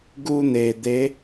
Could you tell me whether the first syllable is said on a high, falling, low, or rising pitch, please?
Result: high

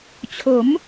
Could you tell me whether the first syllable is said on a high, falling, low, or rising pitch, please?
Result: rising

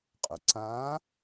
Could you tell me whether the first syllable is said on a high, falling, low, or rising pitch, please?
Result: low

